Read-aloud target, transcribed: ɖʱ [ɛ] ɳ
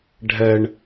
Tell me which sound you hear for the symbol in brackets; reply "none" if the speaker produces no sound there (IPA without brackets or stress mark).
ɛ